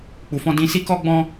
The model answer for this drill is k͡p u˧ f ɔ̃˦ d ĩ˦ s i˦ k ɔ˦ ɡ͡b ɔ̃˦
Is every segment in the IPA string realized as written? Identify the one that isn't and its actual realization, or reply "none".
none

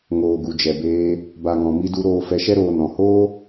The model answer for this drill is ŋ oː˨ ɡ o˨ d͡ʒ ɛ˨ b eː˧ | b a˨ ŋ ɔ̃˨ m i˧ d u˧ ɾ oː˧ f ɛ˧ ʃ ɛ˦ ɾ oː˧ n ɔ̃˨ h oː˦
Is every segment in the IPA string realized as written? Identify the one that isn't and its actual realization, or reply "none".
o˨ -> u˨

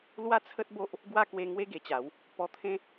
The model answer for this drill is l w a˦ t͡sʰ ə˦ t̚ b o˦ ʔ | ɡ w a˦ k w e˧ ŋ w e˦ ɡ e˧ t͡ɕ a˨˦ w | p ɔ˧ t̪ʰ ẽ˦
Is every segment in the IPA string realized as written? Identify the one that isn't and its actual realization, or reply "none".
none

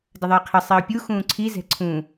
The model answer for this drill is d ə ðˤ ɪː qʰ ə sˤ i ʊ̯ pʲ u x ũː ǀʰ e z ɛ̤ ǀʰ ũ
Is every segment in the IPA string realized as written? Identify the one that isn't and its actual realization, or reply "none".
e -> i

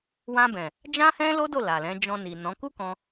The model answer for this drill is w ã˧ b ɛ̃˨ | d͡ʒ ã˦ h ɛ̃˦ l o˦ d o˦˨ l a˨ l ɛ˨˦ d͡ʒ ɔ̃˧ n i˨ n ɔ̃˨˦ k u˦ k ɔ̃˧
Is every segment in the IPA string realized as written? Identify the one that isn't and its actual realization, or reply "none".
ɛ˨˦ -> ɛ̃˨˦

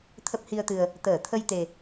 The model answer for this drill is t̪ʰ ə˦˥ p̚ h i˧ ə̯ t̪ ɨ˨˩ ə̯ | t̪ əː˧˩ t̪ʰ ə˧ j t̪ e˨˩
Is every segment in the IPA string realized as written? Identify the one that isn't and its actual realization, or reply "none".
none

